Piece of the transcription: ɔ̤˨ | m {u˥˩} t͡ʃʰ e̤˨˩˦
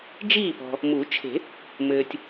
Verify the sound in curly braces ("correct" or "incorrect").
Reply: incorrect